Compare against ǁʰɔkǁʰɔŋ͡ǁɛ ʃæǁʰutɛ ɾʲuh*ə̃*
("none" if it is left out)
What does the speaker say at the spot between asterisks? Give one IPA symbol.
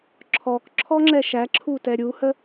ə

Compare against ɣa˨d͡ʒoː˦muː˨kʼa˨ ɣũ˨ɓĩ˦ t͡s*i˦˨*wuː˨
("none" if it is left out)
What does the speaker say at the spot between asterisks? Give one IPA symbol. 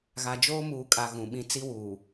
i˦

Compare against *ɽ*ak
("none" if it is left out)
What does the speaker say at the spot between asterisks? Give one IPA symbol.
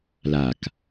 l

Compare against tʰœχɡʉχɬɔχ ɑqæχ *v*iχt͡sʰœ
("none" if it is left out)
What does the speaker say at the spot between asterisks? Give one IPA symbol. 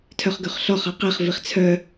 v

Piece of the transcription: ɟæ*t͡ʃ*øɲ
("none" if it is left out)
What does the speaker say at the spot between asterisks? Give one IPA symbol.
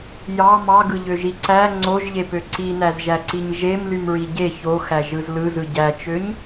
t͡ʃ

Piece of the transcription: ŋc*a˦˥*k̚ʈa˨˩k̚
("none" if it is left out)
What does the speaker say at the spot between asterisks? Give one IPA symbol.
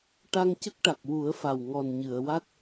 ə˦˥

